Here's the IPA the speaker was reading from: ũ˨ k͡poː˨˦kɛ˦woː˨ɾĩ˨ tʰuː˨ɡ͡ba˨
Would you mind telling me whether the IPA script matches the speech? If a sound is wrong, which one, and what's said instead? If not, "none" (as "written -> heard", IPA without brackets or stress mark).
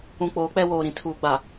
k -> k͡p